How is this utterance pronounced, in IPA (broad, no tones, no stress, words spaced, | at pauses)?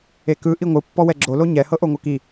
ekɯ ʔiŋʷɯ pːɔwɛɡ͡ǁo loɲɛ hɤʔoŋʷɤki